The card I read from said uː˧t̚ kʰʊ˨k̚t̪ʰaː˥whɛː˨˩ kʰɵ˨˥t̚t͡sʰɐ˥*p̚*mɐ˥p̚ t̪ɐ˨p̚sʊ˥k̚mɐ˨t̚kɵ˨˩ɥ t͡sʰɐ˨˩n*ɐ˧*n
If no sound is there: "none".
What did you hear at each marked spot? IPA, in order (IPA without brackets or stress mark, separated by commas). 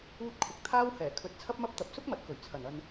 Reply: p̚, ɐ˧